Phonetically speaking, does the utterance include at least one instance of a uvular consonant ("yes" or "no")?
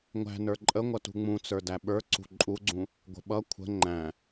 no